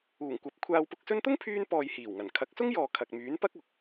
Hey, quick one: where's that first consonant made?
velum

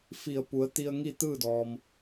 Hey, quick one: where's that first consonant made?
lips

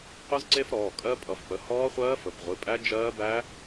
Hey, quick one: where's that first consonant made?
uvula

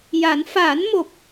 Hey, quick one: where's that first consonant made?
palate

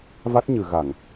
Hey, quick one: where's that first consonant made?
lips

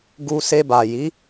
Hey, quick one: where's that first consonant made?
velum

